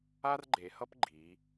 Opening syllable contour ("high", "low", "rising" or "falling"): high